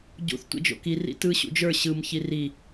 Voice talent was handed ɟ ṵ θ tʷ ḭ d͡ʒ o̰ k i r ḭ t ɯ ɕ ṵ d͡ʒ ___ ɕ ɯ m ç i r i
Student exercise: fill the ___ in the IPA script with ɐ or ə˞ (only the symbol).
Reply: ə˞